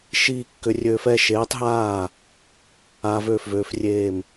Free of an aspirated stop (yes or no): yes